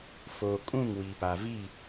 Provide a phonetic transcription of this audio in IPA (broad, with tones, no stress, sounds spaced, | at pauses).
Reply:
f oː˨ kʼ ũ˦˨ ŋ w i˨ p a˨ v i˦˨